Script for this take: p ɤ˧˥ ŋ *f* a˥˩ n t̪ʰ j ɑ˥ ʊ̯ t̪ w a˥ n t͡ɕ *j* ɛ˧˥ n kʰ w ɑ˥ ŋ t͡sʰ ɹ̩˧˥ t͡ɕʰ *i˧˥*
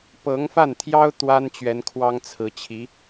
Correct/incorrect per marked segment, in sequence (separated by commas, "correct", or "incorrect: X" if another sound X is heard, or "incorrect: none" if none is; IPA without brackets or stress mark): correct, incorrect: ɥ, correct